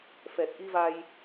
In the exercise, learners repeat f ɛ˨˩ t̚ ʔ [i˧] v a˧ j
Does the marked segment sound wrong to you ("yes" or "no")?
no